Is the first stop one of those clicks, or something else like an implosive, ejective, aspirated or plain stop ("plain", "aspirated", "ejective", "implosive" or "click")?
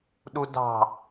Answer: implosive